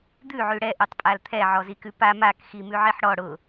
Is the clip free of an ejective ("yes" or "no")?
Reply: no